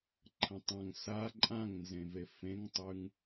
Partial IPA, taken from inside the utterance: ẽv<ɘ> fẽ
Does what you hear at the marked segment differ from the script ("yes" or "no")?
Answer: yes